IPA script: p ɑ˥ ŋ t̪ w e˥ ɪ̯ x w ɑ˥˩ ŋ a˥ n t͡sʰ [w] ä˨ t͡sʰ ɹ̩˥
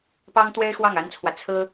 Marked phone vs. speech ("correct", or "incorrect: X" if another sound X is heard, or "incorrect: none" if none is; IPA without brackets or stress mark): correct